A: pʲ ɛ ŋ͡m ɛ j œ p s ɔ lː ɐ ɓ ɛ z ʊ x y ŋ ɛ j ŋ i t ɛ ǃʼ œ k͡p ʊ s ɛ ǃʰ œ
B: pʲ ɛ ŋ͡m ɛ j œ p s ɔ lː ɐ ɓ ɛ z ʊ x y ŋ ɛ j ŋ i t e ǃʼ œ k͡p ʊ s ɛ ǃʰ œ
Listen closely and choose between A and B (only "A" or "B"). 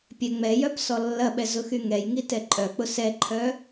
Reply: A